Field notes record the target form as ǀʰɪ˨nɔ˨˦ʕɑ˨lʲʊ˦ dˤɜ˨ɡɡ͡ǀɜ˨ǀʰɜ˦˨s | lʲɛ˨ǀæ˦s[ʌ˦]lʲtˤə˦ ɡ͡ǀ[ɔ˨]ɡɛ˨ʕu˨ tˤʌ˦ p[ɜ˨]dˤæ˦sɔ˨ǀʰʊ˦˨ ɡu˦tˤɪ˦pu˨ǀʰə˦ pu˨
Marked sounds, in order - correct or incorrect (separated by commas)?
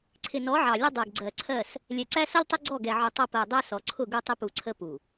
correct, incorrect, correct